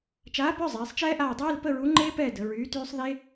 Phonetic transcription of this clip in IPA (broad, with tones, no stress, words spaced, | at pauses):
t͡ʃaː˨˥pœ˧˥˧ zˤɛː˩˧sˤt͡ʃɛː˦˥ʔaː˦˨ dˤɛː˧˥˧lpə˧˥˧ɹu˨˥ ŋ͡ǃeː˦˥pɛː˦˨ də˩˧ɹyː˨˥tyː˦˥sˤ ðe˦˥